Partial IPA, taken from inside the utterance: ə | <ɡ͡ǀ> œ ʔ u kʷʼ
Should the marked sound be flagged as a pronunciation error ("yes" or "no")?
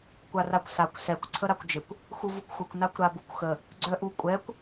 no